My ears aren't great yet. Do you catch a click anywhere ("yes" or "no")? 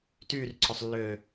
yes